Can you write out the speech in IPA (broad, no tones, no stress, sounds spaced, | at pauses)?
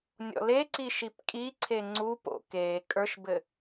nʲ ɔ̰ l e ǀ i ʃ i p kʼ i ǀʰ e ŋ͡ǀ u p o̰ k e kʼ ə˞ ʃ b ɘ